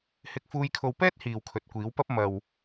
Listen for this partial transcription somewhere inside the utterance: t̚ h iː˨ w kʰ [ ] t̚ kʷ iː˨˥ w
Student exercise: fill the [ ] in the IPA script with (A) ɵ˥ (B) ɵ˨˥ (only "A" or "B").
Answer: B